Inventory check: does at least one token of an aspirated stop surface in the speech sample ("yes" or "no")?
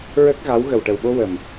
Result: no